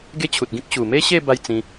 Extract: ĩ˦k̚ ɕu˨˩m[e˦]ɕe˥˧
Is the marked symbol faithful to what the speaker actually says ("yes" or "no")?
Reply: yes